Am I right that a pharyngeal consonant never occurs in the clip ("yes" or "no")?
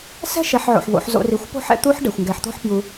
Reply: no